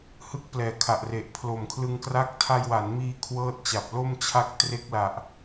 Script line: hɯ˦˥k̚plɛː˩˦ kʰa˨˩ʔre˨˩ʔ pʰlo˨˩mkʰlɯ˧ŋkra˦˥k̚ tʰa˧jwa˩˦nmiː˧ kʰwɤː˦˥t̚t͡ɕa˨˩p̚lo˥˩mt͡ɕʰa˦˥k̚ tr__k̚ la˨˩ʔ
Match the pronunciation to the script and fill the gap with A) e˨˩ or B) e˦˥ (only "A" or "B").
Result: B